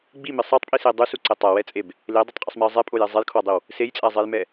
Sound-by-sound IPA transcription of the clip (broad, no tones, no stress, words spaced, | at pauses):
ɡ͡bimɪ sˤatˤpʼise dˤusuǀɛ tˤawɛt͡sʼeb | ledˤetˤqʼɪsˤmɛə̯ zˤɛpʼojɛ zˤejkʰwadˤiw | sejt͡sʼazˤejmɛ